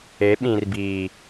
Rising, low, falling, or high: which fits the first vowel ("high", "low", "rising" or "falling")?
rising